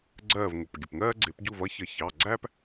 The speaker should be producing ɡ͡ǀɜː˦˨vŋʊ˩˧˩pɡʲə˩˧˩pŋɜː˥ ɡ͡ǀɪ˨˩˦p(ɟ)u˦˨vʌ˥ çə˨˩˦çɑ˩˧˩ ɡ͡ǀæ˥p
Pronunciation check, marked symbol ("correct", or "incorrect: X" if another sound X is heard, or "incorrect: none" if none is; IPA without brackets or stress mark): correct